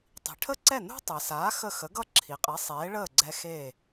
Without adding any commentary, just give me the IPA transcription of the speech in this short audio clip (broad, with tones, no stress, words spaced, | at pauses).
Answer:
tˤi̤˩ʈʰə˥ǀɛ˥˩ nṳ˥tˤɛ˩saː˩˥ xə˥˩ xə˩˥ɡʌ˥˩ ǁʰi˩qʼɛ˩˥ sˤeː˩˥ɭəː˥˩ɡ͡ǀɛ˧ xeː˥˩